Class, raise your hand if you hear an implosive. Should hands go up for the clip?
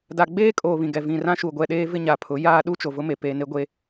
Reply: yes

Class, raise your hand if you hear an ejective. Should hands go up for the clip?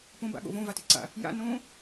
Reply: no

